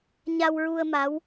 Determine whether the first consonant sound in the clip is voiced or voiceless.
voiced